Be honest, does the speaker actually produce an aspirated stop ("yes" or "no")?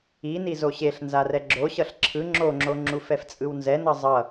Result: yes